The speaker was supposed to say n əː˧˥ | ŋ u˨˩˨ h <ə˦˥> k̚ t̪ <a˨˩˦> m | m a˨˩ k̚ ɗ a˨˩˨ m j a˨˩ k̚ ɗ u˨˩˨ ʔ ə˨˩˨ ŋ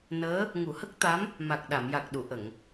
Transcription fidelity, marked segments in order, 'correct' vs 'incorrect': correct, incorrect: a˧˥

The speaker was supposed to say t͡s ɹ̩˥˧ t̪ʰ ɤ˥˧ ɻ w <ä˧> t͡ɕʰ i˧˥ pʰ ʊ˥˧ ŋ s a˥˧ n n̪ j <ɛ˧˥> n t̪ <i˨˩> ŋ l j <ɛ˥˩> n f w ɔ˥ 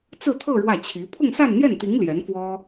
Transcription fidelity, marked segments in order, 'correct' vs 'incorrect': incorrect: ä˥˩, incorrect: ɛ˥˩, incorrect: i˧˥, incorrect: ɛ˧˥

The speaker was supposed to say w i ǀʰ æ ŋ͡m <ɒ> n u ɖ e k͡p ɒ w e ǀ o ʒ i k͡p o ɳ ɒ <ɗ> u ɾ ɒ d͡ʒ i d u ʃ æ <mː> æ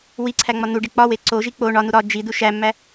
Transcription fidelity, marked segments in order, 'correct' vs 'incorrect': correct, incorrect: n, correct

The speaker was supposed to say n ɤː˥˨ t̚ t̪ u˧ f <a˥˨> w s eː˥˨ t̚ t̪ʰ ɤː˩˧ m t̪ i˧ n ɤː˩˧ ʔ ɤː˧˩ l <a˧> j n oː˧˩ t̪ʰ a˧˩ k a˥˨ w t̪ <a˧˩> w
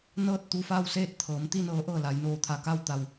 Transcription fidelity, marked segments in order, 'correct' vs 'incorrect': correct, incorrect: a˩˧, incorrect: a˩

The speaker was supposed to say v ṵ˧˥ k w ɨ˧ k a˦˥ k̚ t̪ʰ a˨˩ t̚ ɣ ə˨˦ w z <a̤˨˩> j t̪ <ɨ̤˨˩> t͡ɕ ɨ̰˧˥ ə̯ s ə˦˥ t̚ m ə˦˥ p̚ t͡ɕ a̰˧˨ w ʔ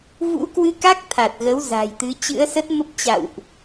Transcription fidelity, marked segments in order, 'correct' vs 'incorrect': correct, incorrect: ɨ˨˦

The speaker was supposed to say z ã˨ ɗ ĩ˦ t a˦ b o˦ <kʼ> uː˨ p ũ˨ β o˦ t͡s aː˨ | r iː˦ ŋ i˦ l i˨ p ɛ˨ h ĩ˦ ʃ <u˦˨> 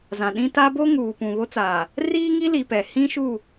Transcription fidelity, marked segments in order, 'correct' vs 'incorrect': incorrect: ŋ, correct

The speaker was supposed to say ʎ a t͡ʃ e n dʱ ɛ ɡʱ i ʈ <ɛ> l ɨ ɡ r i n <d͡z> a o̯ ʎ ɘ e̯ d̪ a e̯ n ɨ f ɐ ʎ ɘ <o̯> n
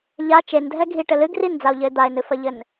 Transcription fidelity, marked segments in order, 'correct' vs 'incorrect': incorrect: ɘ, correct, incorrect: none

